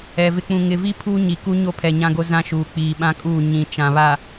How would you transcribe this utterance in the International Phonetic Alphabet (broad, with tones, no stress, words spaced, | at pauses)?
ɛ˨ vɪ˨k͡pũ˨ ŋɪ˨vi˦ pʰuː˦ɲi˨ ku˦ɲo˦pʰɛ˨ ɲã˦ɡo˦ zã˦ʃuː˨ k͡piː˨ɓã˦kʼuː˦˨ ɲĩ˨ t͡ʃã˨βa˨